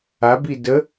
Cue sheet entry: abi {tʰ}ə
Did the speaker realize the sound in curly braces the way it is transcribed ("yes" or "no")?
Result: no